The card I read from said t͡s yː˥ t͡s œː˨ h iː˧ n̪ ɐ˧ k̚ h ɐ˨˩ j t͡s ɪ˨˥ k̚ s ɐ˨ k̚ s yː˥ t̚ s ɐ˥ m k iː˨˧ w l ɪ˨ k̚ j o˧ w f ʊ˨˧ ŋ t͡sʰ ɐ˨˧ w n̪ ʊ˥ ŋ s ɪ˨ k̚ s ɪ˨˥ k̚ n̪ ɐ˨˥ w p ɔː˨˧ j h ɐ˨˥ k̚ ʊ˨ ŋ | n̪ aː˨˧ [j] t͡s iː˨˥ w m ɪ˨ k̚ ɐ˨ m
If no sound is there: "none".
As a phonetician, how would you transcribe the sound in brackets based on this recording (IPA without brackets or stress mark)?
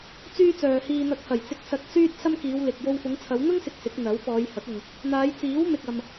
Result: j